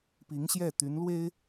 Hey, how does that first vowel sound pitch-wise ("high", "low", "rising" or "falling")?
rising